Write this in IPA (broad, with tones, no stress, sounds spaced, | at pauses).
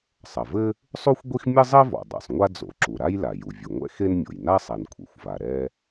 sˤ ɐ˩ v ɘ˥ | sˤ u˥ xʷ ɡʷ i˥ x mʲ ɘ˥ zˤ ɛ˥ v ɔ̰˩ dˤ a̰˩ sˤ ŋʷ a˥ d͡z o̰˩ ǁ u˩ ɾ a˥ j l a˩ j u˩ vʲ ɨ˩ ŋʷ ɛ̰˥ x e˥ n mʲ o̰˩ j n a˥ sˤ ɛ˩ n kʷʰ ɛ̰˩ xʷ v a˩ ɾ ɛ˥